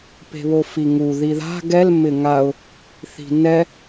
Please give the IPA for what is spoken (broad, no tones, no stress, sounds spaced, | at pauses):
p e̤ β o f i ŋ u ð i ð a̤ ɡ ɛ l m ɪ ŋ a ʊ̯ | θ i̤ n ɛ